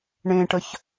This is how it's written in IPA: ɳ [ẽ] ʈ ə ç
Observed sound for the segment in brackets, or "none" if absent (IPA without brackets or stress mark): ẽ